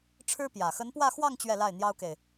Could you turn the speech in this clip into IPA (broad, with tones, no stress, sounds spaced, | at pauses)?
ʈ͡ʂʰ ɻ̩˥ p j ä˨˩ x ə˧˥ n p w ä˥˧ x w ɑ˥˧ ŋ t͡ɕ ɥ ɛ˥˧ l a˥˩ ɪ̯ n̪ j ɑ˥ ʊ̯ k e˨ ɪ̯